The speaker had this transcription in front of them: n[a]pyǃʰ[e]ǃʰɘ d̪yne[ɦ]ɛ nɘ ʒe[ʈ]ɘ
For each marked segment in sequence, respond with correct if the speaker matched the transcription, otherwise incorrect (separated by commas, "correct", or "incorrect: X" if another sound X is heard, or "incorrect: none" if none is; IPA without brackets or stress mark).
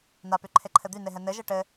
correct, correct, correct, correct